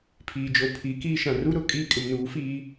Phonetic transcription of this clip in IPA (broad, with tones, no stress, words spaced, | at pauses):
pʰiː˨d͡ʒo˨ pʰiː˨˦kiː˦ʃã˨ ru˦ɾʊ˦˨ kʼiː˦kʼɪ˨mnuː˨˦fiː˦